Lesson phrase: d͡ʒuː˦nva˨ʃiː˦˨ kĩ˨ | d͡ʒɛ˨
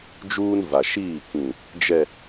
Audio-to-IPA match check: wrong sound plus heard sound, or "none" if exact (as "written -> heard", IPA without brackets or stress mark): none